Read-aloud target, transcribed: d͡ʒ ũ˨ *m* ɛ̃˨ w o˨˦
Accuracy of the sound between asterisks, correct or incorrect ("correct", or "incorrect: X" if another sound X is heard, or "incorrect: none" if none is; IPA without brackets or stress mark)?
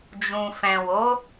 incorrect: f